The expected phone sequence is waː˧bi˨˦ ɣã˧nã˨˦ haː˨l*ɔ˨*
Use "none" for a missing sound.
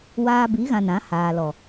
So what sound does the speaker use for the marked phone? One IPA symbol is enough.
ɔ˨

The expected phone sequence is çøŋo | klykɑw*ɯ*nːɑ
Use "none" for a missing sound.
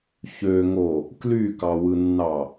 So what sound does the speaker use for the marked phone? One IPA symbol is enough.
ɯ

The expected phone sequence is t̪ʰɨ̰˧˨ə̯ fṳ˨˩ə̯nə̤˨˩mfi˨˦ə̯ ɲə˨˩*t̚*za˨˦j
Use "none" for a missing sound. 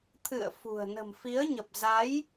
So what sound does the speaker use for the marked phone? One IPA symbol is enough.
p̚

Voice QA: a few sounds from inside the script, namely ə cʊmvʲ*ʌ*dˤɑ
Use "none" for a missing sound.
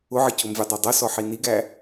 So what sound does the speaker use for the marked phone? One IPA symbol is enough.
ʌ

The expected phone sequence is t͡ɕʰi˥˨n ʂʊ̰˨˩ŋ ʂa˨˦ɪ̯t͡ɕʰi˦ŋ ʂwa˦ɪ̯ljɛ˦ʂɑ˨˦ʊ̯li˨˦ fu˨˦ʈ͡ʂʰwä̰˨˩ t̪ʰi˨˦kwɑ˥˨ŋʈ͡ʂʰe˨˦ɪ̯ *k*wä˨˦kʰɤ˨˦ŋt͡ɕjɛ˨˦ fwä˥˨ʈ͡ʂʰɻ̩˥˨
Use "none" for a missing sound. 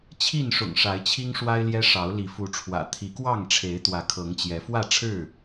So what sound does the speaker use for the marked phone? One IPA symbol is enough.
t̪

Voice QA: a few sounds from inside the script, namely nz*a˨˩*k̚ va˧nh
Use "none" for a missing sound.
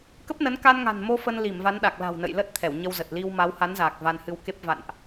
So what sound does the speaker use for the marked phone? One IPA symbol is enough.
aː˨˩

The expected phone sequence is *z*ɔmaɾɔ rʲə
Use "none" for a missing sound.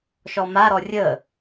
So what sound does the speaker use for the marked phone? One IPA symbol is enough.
ʃ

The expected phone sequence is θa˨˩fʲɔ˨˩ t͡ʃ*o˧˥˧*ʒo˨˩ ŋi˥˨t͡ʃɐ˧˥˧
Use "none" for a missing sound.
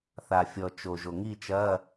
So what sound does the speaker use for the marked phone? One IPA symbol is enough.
o˨˩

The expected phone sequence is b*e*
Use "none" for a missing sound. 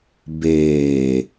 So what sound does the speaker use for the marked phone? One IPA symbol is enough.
eː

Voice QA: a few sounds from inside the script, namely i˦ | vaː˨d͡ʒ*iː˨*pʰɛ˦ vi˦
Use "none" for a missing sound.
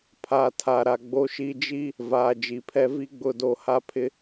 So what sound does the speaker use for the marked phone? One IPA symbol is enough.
i˨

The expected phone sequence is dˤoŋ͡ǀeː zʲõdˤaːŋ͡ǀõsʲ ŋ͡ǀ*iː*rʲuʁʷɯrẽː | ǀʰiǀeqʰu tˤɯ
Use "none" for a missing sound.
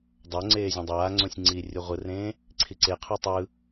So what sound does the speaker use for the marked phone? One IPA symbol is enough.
iː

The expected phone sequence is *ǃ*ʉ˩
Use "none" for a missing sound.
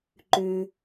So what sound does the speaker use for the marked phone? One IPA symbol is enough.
ǃ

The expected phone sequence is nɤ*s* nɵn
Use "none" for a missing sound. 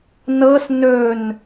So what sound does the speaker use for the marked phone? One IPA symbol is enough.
s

